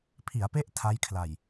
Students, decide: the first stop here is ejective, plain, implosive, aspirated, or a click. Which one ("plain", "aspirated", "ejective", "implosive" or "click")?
aspirated